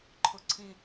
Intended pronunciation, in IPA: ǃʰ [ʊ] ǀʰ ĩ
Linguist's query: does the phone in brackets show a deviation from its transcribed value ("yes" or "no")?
no